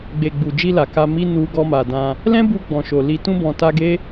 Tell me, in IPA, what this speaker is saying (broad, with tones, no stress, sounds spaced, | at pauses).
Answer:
ɡ͡b e˨ ɡ͡b u˨ d͡ʒ i˧ l a˨ k a˧ m i˦ n u˧ ɡ ɔ˧ m a˨ d ã˧ | l ɛ̃˦ b u˧ ɡ͡b ɔ̃˨ ʃ o˨ l i˧ t ũ˧ b ɔ̃˨ t a˧ ɡ e˦